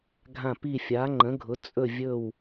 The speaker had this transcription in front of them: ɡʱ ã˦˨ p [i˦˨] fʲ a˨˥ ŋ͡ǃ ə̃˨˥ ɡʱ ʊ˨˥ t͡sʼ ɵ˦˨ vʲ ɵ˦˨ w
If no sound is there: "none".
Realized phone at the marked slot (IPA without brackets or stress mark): i˦˨